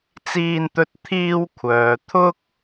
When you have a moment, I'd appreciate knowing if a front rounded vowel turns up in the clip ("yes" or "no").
yes